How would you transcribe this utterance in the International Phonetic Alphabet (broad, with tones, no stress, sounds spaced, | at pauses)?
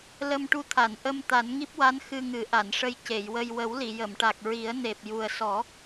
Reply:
l ə˧ m ʈ u˧˥ t̪ʰ a˨˩˨ n ʔ ə˧ m t̪ a˨˩˦ n ŋ i˦˥ p̚ w a˧˥ n x ɨ˧ ŋ ɨ˨˩˦ ʔ a˨˩˨ n ʂ ə˧ j c e˨˩˨ j w ə˧ j w ə˨˩˦ w l i˨˩˨ j ə˨˩˨ m ʈ a˨˩ k̚ ɹ i˨˩˦ ə̯ n e˨˩ p̚ j u˨˩ ə̯ s ɔ˨˩˦